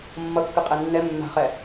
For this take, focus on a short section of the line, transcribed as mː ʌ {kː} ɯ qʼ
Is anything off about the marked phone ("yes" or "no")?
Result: no